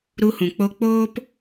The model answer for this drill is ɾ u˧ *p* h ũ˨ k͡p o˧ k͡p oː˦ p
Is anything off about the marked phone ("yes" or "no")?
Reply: yes